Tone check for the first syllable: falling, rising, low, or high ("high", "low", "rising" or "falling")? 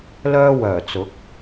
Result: high